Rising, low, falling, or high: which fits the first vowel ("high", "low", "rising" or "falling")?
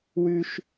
high